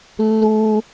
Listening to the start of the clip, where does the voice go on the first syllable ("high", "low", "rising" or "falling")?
low